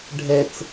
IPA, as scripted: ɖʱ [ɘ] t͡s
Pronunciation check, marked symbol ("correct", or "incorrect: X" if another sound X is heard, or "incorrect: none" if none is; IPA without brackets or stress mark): incorrect: ɛ